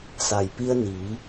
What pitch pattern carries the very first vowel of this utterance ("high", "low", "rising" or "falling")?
low